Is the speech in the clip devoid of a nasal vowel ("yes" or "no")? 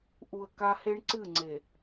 yes